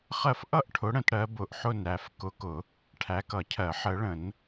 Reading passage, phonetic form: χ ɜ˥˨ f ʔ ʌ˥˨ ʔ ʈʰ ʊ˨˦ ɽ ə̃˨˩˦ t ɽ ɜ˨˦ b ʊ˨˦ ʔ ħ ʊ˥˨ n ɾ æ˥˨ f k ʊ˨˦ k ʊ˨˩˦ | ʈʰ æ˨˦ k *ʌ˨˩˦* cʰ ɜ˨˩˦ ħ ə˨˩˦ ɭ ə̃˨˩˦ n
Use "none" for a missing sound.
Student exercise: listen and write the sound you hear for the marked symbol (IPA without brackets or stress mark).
ʌ˨˩˦